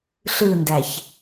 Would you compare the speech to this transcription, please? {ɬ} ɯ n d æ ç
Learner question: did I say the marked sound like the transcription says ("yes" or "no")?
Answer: yes